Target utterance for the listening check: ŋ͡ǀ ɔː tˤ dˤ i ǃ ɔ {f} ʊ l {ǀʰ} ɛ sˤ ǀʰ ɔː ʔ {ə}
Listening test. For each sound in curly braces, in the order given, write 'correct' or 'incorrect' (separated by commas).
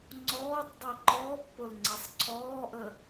incorrect, incorrect, correct